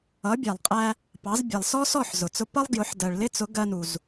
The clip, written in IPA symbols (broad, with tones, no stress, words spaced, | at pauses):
ʌ˩˥bʲæ˩lˠqʼæ˧ | pɑ˩˥zbʲɛ˩lˠsɔ˥ sɔ˥˩ħzʊ˩t͡sʊ˧ pʌ˥lˠ ɡjʊ˩˥ħdɜ˩ɭ lɪ˥t͡sʊ˩˥ ɡɜ˧nu˩z